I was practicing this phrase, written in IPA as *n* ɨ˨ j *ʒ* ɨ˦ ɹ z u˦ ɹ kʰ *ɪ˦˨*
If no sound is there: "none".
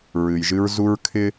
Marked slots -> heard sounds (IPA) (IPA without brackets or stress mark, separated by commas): ɹ, ʒ, ɪ˦